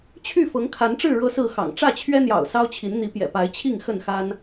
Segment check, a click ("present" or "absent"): absent